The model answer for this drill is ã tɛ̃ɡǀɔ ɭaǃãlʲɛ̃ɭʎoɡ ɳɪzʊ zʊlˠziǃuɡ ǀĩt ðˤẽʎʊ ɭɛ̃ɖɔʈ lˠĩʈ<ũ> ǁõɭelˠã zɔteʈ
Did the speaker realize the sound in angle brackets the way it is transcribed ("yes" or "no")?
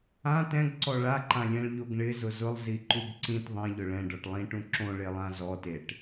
yes